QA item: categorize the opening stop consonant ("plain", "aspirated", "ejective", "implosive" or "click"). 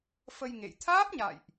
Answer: aspirated